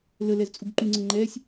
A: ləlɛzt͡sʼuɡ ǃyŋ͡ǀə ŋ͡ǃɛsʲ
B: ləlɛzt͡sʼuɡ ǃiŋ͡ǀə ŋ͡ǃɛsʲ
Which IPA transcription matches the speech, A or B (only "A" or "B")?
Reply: A